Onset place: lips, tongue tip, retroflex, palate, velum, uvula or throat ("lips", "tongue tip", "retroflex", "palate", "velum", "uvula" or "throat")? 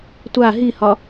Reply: tongue tip